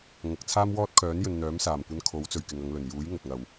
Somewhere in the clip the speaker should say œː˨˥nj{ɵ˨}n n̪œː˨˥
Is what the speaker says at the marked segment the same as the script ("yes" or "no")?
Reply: yes